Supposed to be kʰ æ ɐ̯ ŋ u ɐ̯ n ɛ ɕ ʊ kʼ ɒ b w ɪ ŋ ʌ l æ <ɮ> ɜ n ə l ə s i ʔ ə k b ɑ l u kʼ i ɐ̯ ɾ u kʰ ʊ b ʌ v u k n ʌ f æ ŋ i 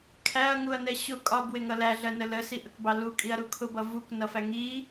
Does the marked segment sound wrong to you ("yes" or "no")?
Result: no